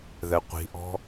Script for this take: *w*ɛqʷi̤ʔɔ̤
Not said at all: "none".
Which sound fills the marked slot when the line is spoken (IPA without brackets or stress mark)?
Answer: ð